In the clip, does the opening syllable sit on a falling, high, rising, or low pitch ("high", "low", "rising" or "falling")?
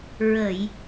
low